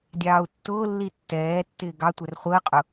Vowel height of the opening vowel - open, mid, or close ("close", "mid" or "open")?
open